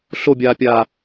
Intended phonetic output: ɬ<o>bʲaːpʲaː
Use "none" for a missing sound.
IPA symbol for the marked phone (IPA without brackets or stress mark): o